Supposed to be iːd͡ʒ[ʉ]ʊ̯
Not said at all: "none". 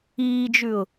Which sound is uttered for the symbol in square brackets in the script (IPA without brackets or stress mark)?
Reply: ʉ